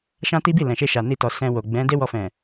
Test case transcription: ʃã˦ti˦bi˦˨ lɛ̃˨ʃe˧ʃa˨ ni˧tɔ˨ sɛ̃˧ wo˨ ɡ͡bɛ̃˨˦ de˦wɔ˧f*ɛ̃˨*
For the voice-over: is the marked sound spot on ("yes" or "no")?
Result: yes